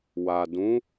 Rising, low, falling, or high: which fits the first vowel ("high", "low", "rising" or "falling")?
low